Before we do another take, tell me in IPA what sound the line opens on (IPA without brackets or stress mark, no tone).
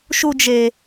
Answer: ʃ